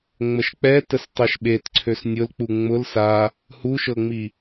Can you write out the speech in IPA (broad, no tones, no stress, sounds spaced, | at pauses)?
ŋ͡m ə ʃ k͡p ɛ t ə s tˤ ɛ ʃ ɓ e t ǀʰ ø s nʲ ʊ l k͡p u ŋ͡m ʊ l s a | h u ʃ ɤ ŋ͡m i